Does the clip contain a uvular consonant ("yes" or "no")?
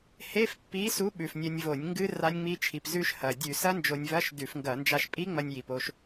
no